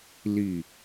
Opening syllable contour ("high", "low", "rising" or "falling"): low